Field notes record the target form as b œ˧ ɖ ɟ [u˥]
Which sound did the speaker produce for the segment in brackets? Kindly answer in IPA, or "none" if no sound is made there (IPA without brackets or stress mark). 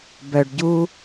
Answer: u˥